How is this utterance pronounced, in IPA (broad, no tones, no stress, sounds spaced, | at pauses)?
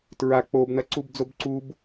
t ɹ a k͡p o b n ɐ ǀ u b d͡z o b ǀ u b